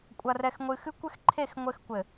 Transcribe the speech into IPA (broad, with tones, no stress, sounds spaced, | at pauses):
kʷʼ ɐ˨ r ɛ˨ x ŋʷ ɨ˨ x ɨ˦ kʷ ɘ˦ x ǃʰ e˦˨ x ŋʷ ɘ˦ x kʷ ɘ˨